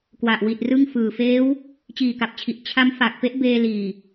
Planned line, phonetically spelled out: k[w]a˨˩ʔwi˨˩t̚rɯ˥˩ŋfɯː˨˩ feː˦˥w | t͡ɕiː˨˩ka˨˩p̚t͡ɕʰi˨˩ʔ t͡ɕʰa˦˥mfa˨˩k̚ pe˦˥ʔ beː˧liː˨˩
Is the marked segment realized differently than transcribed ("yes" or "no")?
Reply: no